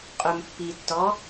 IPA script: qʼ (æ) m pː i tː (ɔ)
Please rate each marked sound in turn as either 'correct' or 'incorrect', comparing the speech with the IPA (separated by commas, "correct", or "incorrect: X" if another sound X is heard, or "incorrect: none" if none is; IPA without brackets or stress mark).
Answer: incorrect: œ, correct